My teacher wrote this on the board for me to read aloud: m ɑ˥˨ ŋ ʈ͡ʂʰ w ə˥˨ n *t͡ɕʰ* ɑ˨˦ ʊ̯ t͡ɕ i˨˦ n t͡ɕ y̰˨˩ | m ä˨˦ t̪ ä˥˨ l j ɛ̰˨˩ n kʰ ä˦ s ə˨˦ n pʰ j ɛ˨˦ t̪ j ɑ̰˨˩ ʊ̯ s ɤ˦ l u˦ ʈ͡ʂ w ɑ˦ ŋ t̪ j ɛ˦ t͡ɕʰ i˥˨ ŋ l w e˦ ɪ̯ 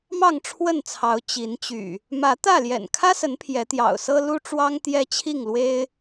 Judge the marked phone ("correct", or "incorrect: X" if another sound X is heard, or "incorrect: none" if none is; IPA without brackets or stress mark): incorrect: t͡sʰ